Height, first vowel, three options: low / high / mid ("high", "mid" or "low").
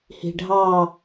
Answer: high